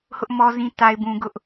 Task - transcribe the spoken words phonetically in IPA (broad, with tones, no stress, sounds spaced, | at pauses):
h ʊ˦ ʔ m ɔ˦ z ĩ˦ t a˦ ɪ̯ b ũ˦ ɡ ʊ˦ ʔ